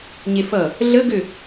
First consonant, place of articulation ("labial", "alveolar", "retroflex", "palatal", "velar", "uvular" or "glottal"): palatal